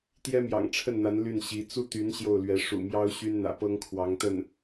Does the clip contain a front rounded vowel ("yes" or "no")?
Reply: yes